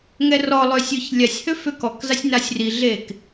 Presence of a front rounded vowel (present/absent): present